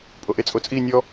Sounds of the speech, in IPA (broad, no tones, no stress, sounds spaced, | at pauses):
pʼ o ʔ e t͡sʼ o t͡sʼ i nʲ ɔ